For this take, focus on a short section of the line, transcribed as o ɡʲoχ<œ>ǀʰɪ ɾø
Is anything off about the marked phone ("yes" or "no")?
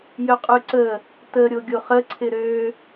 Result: yes